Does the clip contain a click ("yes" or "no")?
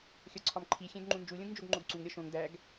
yes